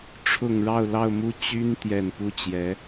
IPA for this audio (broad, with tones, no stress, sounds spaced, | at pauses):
ʈ͡ʂʰ ʊ˨˩ ŋ ɻ ɑ˥˧ ʊ̯ l ɑ˥˧ ʊ̯ m u˥˩ t͡ɕ y˥ n t̪ j ɛ˨˩ n p u˥˩ t͡ɕ j ɛ˧˥